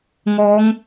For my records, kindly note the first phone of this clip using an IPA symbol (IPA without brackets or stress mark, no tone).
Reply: ŋ